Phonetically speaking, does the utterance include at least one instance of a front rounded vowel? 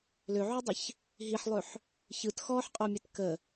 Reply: yes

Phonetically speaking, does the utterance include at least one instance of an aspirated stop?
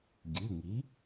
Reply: no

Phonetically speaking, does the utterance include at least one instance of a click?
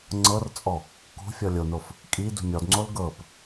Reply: yes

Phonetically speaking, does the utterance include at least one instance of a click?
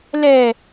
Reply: no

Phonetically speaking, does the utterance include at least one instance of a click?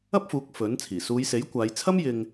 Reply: no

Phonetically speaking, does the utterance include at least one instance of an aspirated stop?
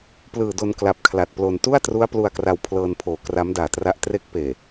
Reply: yes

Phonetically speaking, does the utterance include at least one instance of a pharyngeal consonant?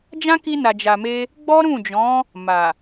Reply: no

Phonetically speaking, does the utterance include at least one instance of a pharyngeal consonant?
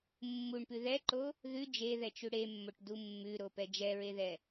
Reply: no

